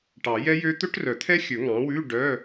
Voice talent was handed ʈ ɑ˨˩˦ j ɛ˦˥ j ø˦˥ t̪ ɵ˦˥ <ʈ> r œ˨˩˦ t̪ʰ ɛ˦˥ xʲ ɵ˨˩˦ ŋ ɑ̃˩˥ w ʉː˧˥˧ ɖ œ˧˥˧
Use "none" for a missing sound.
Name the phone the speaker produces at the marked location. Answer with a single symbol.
ʈ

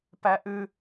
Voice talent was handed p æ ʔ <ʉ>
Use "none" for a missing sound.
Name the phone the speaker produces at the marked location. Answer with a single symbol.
ʉ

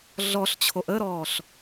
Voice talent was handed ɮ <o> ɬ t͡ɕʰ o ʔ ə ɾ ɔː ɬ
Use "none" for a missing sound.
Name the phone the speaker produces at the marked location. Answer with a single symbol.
ɔ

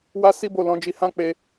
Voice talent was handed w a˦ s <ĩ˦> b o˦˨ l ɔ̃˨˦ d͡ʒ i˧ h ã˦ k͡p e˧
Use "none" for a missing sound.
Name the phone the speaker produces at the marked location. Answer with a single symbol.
i˦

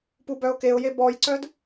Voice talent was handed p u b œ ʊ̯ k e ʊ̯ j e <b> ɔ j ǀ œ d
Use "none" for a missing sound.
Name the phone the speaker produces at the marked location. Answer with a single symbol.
b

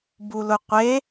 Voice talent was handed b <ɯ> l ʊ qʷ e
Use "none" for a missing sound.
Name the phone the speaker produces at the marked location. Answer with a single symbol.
u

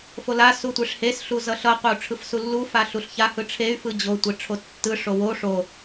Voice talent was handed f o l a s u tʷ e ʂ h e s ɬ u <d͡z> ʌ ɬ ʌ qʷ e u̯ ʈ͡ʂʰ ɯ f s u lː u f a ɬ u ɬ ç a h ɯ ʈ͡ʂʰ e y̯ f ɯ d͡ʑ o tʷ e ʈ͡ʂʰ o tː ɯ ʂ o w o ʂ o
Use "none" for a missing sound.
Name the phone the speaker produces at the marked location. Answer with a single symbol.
z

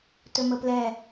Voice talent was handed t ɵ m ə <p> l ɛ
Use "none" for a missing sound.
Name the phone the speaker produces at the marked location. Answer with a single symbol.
p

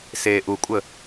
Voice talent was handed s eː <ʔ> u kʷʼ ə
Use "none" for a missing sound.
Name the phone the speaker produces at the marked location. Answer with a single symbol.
ʔ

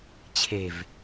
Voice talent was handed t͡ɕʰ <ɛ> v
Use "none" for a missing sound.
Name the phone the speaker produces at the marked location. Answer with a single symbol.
e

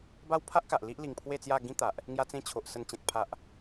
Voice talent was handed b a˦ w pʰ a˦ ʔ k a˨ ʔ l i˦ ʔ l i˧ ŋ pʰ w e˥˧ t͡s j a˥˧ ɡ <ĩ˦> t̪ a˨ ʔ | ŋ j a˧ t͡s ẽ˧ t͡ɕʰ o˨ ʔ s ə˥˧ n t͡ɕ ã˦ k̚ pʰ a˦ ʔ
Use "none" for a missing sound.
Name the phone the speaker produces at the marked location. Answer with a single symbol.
ĩ˦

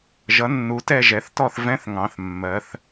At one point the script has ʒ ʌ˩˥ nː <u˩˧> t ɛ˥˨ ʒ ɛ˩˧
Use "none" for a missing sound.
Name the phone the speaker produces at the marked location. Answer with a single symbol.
u˩˧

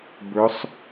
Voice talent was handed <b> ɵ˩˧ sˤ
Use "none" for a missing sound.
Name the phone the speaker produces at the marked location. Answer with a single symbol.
b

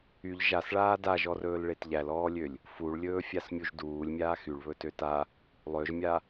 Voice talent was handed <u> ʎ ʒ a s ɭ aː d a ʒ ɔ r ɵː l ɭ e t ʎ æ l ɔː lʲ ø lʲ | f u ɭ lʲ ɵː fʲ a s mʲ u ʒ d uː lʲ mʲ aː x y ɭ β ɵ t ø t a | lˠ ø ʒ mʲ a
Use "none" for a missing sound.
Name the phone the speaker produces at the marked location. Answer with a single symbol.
y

